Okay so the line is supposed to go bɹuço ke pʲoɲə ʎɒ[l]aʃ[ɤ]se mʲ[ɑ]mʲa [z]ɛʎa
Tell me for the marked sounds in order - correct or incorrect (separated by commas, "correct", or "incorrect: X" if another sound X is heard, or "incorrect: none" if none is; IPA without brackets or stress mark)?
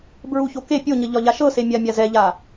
incorrect: ʎ, correct, incorrect: a, correct